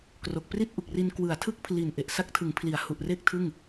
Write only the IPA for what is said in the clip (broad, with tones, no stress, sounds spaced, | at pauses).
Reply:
k r o˨˩ k̚ p r i˥˩ t̚ ʔ u˨˩ k̚ r i˧ n k w ɯ˨˩ a̯ tʰ ɯ˥˩ k̚ pʰ l i˨˩ n ʔ e˨˩ ʔ s a˦˥ k̚ tʰ ɯ˩˦ ŋ pʰ l i˩˦ a̯ h u˨˩ ʔ r e˥˩ k̚ tʰ ɯ˥˩ ŋ